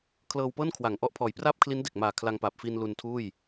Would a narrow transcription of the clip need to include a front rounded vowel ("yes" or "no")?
no